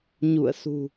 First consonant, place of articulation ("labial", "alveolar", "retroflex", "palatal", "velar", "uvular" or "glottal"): palatal